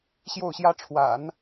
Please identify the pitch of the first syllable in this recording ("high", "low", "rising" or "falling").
falling